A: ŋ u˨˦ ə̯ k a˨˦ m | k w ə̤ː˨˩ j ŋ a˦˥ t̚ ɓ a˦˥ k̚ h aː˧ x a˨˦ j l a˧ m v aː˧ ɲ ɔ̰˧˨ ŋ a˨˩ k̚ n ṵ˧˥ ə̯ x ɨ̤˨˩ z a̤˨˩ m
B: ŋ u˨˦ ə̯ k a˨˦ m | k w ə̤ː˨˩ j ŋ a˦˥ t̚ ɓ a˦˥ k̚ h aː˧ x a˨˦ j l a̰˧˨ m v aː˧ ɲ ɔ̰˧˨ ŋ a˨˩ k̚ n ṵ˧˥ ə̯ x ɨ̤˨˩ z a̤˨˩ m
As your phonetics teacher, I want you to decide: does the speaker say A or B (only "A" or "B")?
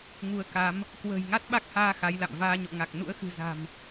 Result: B